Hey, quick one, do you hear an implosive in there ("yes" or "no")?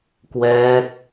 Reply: no